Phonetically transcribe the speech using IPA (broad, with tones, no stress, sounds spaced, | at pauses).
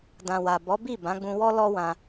d ã˨ w a˨ b ɔ˨˦ b i˦˨ b ã˨˦ ɡ͡b ũ˧ w ɔ˦ l ɔ˦ w ã˧